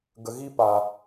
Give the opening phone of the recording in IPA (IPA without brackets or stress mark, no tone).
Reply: ɡ